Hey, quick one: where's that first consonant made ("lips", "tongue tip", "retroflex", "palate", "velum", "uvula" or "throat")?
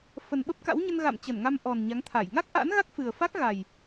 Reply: lips